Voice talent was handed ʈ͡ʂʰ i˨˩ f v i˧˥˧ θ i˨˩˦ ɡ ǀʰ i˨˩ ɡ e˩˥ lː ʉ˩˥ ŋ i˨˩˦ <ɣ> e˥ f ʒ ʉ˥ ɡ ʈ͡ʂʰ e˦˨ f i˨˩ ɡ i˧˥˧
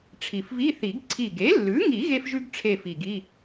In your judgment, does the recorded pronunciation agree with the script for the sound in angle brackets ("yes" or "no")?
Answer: yes